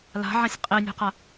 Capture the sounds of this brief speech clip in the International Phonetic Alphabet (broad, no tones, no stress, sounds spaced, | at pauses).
l a̤ ʕ ã sʲ qʼ e nʲ o̤ q a